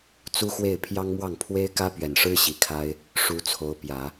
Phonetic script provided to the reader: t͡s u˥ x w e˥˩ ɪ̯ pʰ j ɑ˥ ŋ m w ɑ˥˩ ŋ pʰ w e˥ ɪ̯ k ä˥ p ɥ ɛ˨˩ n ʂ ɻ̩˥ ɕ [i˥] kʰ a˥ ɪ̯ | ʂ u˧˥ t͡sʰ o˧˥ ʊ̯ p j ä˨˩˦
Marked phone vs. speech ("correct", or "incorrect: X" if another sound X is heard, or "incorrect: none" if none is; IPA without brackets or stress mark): incorrect: i˨˩